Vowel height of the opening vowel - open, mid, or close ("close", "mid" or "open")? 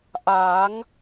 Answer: open